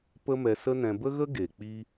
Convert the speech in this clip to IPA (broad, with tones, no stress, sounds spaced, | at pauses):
p ə˦ m ɛ˧ s ə˦ n ɛ̃˧ b ə˦ ɣ ə˦ ɡ e˨ k͡p iː˦